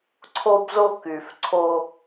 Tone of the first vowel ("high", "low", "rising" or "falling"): high